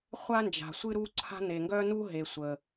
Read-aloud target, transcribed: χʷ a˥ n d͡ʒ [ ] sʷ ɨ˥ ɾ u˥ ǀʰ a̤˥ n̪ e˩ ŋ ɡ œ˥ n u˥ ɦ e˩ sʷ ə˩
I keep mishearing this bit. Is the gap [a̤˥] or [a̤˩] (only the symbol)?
a̤˩